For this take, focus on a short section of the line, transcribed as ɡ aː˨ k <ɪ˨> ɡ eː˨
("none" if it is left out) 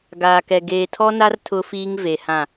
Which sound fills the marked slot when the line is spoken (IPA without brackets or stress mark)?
ɛ˨